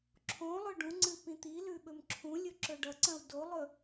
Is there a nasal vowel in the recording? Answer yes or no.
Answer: yes